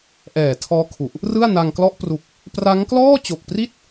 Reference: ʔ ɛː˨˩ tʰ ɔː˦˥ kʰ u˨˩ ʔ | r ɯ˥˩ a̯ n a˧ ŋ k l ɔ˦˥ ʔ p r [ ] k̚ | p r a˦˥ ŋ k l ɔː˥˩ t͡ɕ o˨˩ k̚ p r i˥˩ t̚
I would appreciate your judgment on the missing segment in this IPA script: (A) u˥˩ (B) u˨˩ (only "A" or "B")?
B